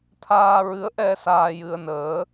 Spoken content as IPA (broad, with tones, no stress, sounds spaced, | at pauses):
t̪ʰ aː˧ ɹ ɨ˧˥ ə̯ ʔ ɛ˧ s aː˧ j ɨ˧ ə̯ n əː˧˥